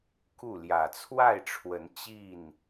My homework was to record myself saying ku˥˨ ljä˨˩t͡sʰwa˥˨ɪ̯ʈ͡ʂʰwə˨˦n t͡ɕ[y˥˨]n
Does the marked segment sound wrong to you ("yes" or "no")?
yes